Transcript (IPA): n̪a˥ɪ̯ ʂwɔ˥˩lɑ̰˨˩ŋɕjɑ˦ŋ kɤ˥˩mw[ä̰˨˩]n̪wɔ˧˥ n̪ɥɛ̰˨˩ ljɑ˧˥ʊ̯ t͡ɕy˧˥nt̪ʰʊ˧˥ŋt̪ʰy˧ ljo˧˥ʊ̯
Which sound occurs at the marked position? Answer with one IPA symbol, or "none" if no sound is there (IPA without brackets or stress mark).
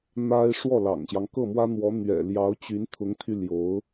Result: ä˥